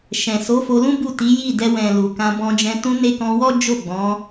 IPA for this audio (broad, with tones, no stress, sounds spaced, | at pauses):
ʃ ɛ̃˨ s o˨˦ f o˧ l ũ˦ b u˦˨ t i˨˦ j i˦˨ d ɛ˧ w ɛ̃˨ l u˨ k ã˧ b ɔ̃˧ d͡ʒ ɛ̃˧ t ũ˧ n e˧ k ɔ̃˧ w ɔ˦ d͡ʒ o˦˨ ɡ͡b ɔ̃˨˦